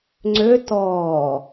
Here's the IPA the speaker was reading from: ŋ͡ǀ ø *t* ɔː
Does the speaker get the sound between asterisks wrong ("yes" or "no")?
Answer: no